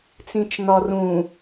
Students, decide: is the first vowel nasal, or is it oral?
nasal